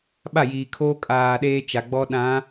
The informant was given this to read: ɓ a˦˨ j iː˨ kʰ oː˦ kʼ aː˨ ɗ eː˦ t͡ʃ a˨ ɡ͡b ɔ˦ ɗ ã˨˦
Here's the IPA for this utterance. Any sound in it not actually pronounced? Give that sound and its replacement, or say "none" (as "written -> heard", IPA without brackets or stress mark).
none